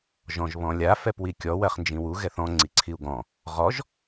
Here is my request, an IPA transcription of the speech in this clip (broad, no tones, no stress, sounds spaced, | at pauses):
ʒ ɔ̃ ʒ β ɔ̃ lʲ a f ɛ p w i kʲ ɔ w ɜ χ n d͡ʒ ĩ w u ɣ ɛ θ ɔ̃ ŋ͡ǀ i ǀʰ i u̯ ɡ ɔ̃ | ʁ ɔ ʒ